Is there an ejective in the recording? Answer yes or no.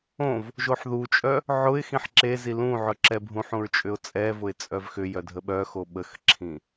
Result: yes